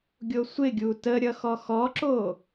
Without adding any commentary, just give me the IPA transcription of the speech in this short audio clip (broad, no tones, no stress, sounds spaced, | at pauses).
ɡʲ o sʷ ɪ ɡʲ u t ə ɾʲ ʌ x ɔ x ɔ ǁ o